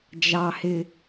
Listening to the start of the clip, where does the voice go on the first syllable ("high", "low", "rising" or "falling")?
low